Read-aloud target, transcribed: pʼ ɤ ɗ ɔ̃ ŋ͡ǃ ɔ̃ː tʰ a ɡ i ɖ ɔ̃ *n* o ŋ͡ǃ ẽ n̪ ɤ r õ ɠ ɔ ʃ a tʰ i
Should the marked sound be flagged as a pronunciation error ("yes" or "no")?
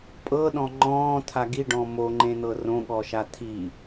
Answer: yes